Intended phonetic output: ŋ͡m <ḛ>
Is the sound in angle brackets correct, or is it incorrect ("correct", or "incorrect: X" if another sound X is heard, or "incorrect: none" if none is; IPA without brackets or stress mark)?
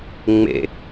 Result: correct